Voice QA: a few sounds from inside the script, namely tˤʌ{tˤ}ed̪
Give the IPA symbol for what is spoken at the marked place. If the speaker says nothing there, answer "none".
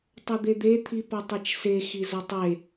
d̪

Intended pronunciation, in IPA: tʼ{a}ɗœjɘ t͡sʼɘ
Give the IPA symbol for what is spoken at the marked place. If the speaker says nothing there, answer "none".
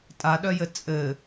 a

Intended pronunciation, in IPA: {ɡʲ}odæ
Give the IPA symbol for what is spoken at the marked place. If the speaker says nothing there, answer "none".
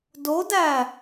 d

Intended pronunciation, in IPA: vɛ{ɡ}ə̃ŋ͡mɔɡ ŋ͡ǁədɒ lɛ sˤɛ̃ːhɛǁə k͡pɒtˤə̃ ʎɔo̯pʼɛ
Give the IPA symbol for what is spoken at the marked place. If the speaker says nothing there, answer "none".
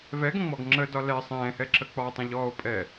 ɡ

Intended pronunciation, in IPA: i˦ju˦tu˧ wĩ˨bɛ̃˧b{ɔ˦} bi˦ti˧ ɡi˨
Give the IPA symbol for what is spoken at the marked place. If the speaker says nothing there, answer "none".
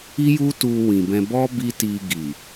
ɔ˦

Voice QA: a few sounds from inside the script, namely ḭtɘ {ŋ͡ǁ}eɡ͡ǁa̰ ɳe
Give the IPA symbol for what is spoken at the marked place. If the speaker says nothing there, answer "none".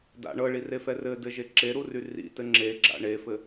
ŋ͡ǁ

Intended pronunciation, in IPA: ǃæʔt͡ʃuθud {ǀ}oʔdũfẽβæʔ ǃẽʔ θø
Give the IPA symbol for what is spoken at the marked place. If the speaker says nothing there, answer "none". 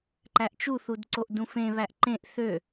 ǀ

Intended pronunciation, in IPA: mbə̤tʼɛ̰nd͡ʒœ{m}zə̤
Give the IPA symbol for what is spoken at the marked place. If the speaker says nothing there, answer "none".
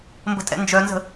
n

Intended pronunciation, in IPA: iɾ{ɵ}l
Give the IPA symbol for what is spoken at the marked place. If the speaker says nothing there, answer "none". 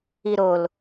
o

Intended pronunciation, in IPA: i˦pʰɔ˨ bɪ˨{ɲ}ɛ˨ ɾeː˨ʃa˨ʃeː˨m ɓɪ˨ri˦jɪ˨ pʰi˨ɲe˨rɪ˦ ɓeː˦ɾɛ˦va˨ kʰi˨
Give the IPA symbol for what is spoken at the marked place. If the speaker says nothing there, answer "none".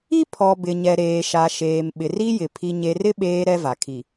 ɲ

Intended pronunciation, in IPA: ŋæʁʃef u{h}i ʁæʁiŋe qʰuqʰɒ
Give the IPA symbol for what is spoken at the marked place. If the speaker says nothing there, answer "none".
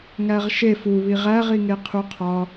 β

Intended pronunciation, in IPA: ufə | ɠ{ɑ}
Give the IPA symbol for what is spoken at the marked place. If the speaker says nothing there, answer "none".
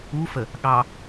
ɑ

